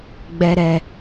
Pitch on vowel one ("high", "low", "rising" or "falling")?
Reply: low